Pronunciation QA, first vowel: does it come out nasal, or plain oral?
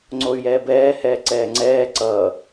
oral